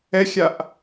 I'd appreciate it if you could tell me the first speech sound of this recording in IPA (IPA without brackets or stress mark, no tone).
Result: ɛ